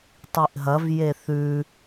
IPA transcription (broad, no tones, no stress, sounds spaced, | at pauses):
tˤ i ʔ ɦ ɐ v j e θ ʉ